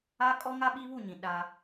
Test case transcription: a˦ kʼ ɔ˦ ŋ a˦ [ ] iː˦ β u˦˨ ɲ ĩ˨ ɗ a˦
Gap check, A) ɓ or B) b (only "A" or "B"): A